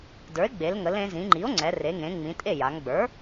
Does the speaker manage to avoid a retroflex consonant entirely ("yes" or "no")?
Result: yes